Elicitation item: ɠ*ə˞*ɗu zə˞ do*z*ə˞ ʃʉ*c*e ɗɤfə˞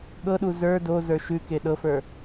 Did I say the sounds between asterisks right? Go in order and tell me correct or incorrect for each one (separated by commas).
incorrect, correct, incorrect